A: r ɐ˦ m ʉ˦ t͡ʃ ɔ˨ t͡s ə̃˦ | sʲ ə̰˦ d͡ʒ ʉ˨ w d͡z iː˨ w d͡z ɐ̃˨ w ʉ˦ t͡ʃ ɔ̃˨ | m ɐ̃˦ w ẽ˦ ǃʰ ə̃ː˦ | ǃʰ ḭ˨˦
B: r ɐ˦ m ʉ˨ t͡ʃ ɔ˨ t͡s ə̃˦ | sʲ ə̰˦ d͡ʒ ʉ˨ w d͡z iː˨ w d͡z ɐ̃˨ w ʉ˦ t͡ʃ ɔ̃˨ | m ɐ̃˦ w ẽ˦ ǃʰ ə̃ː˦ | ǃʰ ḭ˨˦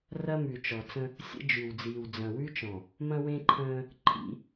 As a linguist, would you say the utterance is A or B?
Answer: B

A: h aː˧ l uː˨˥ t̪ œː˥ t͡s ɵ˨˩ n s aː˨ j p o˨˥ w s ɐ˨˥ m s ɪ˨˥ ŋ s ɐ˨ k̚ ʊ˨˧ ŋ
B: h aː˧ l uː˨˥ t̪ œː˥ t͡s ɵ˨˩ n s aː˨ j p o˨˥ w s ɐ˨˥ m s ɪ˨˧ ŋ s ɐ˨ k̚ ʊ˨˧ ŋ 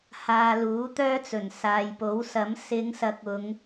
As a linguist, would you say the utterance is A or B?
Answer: B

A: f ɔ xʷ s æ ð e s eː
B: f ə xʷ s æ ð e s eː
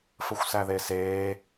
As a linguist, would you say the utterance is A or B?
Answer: B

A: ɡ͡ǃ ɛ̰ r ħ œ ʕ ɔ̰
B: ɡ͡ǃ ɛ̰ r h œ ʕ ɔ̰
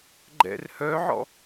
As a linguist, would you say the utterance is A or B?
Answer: B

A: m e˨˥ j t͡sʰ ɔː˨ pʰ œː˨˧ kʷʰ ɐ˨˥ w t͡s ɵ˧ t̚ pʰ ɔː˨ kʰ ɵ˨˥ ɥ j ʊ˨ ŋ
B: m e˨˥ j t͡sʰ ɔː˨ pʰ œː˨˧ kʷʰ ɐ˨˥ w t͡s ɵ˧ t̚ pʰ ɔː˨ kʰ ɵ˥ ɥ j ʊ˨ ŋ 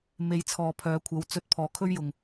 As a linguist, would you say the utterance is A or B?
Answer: B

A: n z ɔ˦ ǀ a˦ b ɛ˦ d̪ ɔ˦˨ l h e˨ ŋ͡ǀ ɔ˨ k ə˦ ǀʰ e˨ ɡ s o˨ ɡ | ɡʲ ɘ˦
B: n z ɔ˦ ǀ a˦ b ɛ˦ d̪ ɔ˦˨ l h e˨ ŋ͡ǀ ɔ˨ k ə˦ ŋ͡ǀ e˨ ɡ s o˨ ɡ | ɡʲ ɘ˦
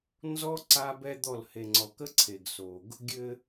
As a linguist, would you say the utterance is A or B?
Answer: A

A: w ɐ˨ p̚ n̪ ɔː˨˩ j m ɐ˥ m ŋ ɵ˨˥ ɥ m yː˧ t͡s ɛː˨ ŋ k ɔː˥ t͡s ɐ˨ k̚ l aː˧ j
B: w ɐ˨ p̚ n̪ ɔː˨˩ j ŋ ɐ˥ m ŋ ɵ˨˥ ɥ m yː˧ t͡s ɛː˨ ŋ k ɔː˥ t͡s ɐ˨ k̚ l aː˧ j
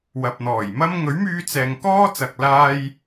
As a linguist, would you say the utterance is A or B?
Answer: A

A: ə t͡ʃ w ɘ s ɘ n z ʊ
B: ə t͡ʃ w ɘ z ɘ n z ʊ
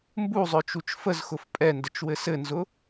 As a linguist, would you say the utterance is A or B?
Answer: A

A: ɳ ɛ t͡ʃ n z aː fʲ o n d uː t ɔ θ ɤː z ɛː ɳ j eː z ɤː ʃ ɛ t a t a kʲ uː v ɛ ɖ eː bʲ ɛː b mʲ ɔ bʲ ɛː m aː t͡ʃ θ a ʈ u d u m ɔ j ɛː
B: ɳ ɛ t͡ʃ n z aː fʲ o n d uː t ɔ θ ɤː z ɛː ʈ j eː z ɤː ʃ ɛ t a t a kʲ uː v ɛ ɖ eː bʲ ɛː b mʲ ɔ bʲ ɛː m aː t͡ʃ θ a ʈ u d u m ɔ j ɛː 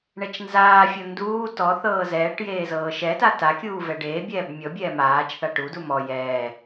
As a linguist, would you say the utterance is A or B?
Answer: B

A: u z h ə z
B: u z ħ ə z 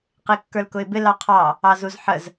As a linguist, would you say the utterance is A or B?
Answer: B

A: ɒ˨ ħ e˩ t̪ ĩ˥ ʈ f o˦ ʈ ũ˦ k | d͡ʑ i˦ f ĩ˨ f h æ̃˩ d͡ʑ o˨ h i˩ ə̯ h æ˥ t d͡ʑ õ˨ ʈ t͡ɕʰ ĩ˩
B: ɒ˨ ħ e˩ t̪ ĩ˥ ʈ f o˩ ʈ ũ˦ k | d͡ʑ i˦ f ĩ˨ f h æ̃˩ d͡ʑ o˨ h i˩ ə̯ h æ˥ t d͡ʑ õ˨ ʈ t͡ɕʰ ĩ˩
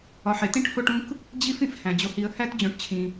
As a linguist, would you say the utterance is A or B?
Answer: A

